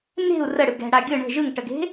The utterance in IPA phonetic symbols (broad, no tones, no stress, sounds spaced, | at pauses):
n e̤ u̯ r ə ɽ ɯ ɡ ɛ̤ ɽ a ɡʲ ɯ ɳ ə̤ ʒ ɯ ŋ ʈ ə ɡ e̤